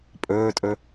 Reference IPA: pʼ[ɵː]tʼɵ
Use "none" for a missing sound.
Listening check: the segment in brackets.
ɵː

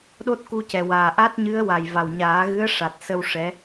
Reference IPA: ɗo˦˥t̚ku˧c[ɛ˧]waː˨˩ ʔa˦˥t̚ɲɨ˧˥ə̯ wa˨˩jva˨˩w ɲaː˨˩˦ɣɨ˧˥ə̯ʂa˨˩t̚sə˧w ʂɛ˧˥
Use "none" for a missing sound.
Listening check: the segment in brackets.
ɛ˨˩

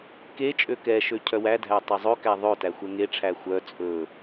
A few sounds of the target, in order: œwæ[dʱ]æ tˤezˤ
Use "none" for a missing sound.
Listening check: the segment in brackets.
dʱ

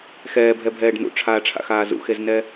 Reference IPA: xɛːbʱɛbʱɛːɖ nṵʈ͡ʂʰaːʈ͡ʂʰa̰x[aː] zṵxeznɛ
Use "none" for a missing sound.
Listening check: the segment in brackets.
aː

